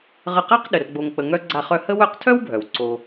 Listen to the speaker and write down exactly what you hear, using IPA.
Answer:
ʁə˦ qa˥q ɗə˩rɡ͡bo˨ŋk͡pə˨ ŋœ˦ ɡ͡ǀa˦χœ˥ hə˦wœ˦qtʰœ˥wbʱœ˩w ǀo˨

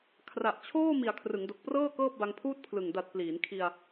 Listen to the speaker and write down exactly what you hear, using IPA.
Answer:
kʰra˨˩ʔt͡ɕʰoː˥˩ mi˨˩a̯kʰrɯ˩˦ŋdo˨˩k̚prɤː˥˩ kɤː˥˩p̚ba˧ŋpʰuː˥˩t̚ pʰlɯ˨˩ŋ da˨˩t̚ pliː˩˦nkʰi˧a̯

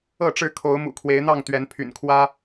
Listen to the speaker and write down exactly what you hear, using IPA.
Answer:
ɤ˥˨ʈ͡ʂɻ̩˥˨ kʰo˨˦ʊ̯mṵ˨˩kʰwe˨˦ɪ̯n̪ɑ˥˨ŋ t̪ɥɛ˨˦npʰy̰˨˩nkʰwä˦

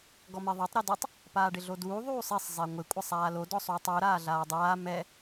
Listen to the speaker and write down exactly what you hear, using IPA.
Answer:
ɡɔmeðˤatˤ ɾɛdɔtˤ | paːɖɪɮoduː ðˤuːsˤɛsˤ zˤeŋʷɪ kʷʼɪsˤaːlo dɔsˤuːtˤu ɾaːɮaːdˤaː mɛ

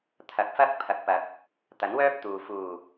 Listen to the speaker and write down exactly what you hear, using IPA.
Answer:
t̪ʰɐ˨˥k̚fɐ˥k̚ pʰɐ˨˥k̚pɐ˨˥k̚ | t̪ɐ˨˥nwœː˥p̚ t̪uː˨ fuː˨˩

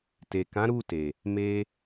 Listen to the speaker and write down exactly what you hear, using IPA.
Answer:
te˨kã˨˦ ɾu˦˨te˨ | me˧

